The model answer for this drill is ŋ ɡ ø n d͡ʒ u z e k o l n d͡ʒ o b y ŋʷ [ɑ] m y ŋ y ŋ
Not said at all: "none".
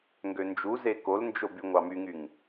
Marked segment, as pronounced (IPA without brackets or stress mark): ɑ